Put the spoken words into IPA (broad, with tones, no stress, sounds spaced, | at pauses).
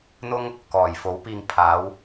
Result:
n̪ ʊ˥ ŋ | k ɔː˨˩ j f o˨˥ w p iː˧ ŋ pʰ aː˨˥ w